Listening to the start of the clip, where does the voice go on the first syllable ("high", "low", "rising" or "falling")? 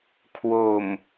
low